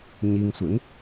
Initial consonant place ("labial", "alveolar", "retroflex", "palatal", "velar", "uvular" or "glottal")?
palatal